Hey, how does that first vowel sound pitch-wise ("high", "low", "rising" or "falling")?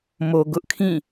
low